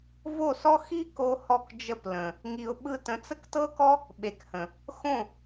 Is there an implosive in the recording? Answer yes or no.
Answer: yes